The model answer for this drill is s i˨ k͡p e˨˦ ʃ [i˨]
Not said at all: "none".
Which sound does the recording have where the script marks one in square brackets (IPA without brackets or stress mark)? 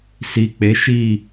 i˦˨